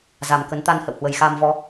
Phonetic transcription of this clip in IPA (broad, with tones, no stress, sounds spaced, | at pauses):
z a˨˩ m k ə˨˦ n t̪ a˧ n h ə̰˧˨ w h w ə˨˩ j x aː˧ m v ɔ˨˦